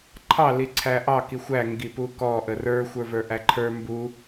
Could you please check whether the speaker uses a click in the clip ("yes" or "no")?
yes